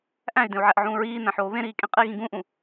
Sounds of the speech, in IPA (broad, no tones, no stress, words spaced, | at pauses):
ʔæ̃y̯dẽu̯ʕæʔʕũː ɹiːnæ̃ħoː βẽɾiːkʼẽ qʼiɣĩ ɡũʔũ